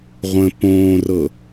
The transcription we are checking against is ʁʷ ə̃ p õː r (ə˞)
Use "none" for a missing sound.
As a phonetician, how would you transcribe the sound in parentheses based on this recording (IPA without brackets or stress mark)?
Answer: ɤ